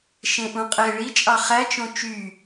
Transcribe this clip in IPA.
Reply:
ʃ ẽ ʔ ũ qʼ e ɭ i t͡ʃʼ ɑ χ æ t͡ʃ õ t͡ʃ y

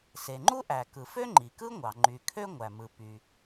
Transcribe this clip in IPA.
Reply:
s e˩ ŋ͡ǃ u˥ ʔ æ˩ k ɯ˩ f ø˥ ŋ͡ǃ i˩ k ɯ˥ ŋʷ ɑ˩ ŋ͡ǃ y˩ kʰ ø˥ ŋʷ æ˩ m ɯ˩ p y˩

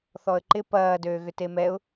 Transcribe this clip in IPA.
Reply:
θ ɔ ə̯ ǃ ɪ p ɐː d øː ɣ ʏ t e m ɛ ʊ̯

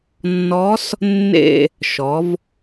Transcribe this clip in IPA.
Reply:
nː ɔ˧˥ s | nː ḛ˦˨ | ʃ ɔ˩˧ v

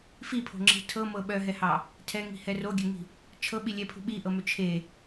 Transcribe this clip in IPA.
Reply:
f i pʰ o̤ ŋ͡ǁ i̤ tʰ ɤ m ɤ ɓ œ ɦ ɛ h ɑ | tʰ ɛ ŋ i̤ h ɛ r o ɡʲ ø ŋ i̤ | t͡ʃʰ ɤ ɓ i lʲ ɛ pʰ ṳ ɓ i ʔ ɤ m ø t͡ʃʰ e

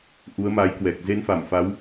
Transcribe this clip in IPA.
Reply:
ʔ u˨˦ ə̯ m a˨˦ j k w ɛ˨˩ k̚ z e˧ n f a˧˩ m f a˨˦ w

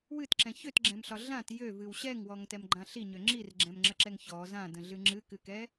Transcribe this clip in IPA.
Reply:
w ɨ t ǁ ɛ̃ ç ø t ɡ͡ǁ ɛ̃ m ɬ ɒ ɮ ã t j ø v ɨ w ɕ ɛ ŋ w ɔ ŋ t ɛ m ɡ͡ǃ ã ɬ i ɲ ø ŋ͡ǁ i r ɡ͡ǁ ɛ̃ m ŋ͡ǁ ə ǁ ɛ ŋ ç ɔ z ã d ə̃ ɮ ɨ ŋ͡ǁ ɨ k ɨ k ɛ

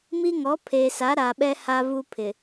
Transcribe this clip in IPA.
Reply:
m i˦ ŋ ɔ˨˦ pʰ eː˨ s a˨˦ ɾ a˨ ɓ ɛ˦ h a˦ v u˦ pʰ ɪ˨

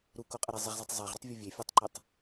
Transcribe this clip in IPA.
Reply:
ɾ u k o qʼ ə ɾ e zˤ ə ʁ z ə tˤ zˤ e ʁ ɾ u tˤ vʲ ɯ vʲ e fʲ u tˤ ǃ e tˤ

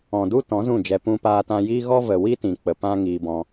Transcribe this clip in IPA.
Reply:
ɔ̃˨ d u˦ t ɔ̃˨˦ z ũ˦˨ d͡ʒ ɛ˧ p ũ˧ p aː˧ t ã˧ j iː˦ ɣ ɔ˦ v ə˨ w i˦ t ĩ˨ k͡p ə˨ p ã˦ ŋ iː˧ b ɔ̃˧

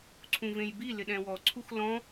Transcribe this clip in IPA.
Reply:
ǀʰ ũ v ẽ j b i l ɪ ɗ ɛ̃ w ɔ ǀʰ u x l ɔ̃

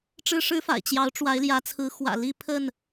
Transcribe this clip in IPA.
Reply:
ʈ͡ʂ ɻ̩˦ ʂ ɻ̩˦ f a̰˨˩ ɪ̯ t͡ɕ j ɑ˨˦ ʊ̯ ʈ͡ʂ w a˨˦ ɪ̯ l j ä˨˦ t͡sʰ ɹ̩˨˦ x w ä̰˨˩ l i˥˨ pʰ ə˥˨ n

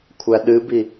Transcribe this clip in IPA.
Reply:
kʷʰ æ ɗ ɨ b i

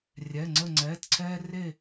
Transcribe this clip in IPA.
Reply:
rʲ ɛ˩˧˩ ŋ͡ǀ ə˦˨ ŋ͡ǀ ɛː˩˧˩ t ǀʰ ɛː˦ r e˦˨

